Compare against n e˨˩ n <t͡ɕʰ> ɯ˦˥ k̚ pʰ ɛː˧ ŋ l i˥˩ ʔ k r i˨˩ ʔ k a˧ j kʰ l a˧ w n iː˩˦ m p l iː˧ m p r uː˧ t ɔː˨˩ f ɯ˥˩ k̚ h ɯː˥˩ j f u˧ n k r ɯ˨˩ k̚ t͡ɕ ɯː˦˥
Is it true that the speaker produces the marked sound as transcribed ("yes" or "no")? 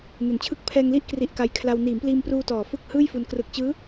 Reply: yes